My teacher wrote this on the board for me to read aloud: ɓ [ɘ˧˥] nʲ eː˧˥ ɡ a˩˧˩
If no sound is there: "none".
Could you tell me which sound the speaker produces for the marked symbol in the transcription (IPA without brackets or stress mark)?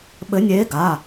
ɘ˧˥